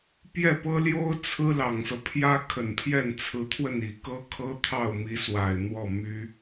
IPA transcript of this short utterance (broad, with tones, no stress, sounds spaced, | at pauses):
p j ɛ˥˩ p ɤ˥ l j o˥ ʊ̯ t͡sʰ ɹ̩˥ l ɑ˨˩ ŋ s ɤ˦ pʰ j ä˥ kʰ ə˨˩ n pʰ j ɛ˥˩ n t͡sʰ ɹ̩˧˥ t̪ʰ w ə˥˩ n i˨˩ k ɤ˥ kʰ ɤ˥ t̪ʰ ɑ˥˩ ʊ̯ m i˧˥ s w a˨˩ ɪ̯ n̪ w ɔ˥˩ m y˥